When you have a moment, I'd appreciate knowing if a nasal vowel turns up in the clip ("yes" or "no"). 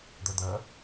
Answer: no